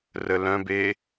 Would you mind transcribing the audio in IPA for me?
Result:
r ə l œ̃ b e

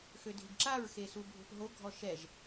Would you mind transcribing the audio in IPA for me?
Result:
x ø dʱ i ɡ ǁ a ɹ x e s u bʱ o̤ p ɦ o ɡʱ ɔ ʃ ɛ ʒ

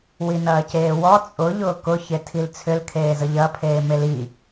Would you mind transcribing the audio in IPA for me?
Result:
w i n ɐː c eː w ɔ t͡sʼ ʊ ʎ ʊː k ʊ ç e tʰ i l t͡sʰ ʏ l kʰ eː z ə ʎ ɐ pʰ eː m e l i

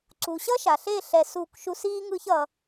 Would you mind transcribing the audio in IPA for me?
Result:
ǀ u˨ ɕ ʌ˦ ʃ a˨ ɬ e˦˨ ɬ ɛ˧ s u˦˨ k ʃ u˦ s iː˦ ŋ ɯ˦ ç ʌ˧

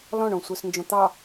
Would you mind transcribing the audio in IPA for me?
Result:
l ɔ̃ ɳ õ sʷ ə˞ s n d͡ʒ õ t̪ ɑ

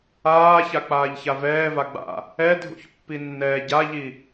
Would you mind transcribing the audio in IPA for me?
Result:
aː ç a k͡p aː ʎ ç a v ɛː v a ɡ͡b a̰ | ɛ dʱ ṵ ç pː i nː ɛː ɟ a ʎ i

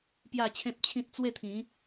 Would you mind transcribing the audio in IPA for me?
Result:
p j a˥˧ t͡ɕʰ ẽ˦ p̚ t͡ɕʰ ĩ˦ t̚ t͡s w e˥˧ t̪ʰ ĩ˨˦

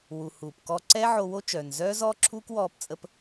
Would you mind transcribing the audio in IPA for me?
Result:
w u˩ h uː˩ p k ɔ˧ ǀ ɛ˥ ʕ o˧ w o˥ t͡ʃ œː˩ n z œː˥ z ɔː˥ ǁʰ uː˥ k w ɔː˥ p t͡sʼ ə˥ p

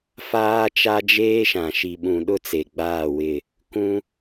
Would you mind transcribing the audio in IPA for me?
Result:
f aː˦ t͡ʃ a˦ d͡ʒ eː˦ ʃ ã˨ ʃ i˨ ɓ ũ˨ ɗ ʊ˦˨ t͡s e˨ ɡ͡b aː˦˨ w ɪ˦˨ | k ũ˦

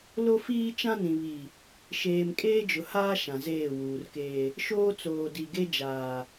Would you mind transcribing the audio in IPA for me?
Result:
l o˦ f iː˦ t͡ʃ ã˦ n ĩ˨ β i˨ | ʃ eː˨ m kʼ eː˦ d͡ʒ ʊ˨ h aː˦ ʃ ã˨ z eː˦˨ w uː˨ r k eː˦ | ʃ oː˦ t͡s oː˨ d i˨ ɡ e˦ d͡ʒ aː˨

